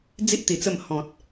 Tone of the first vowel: high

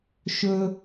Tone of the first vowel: high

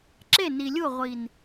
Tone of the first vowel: falling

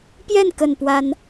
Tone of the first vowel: falling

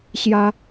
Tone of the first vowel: high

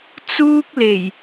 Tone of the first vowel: high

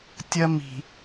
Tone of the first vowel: high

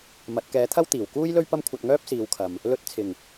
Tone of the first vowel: rising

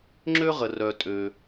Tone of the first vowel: high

